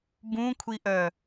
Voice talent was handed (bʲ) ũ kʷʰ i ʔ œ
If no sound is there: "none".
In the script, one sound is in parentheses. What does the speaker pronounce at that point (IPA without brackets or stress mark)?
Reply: b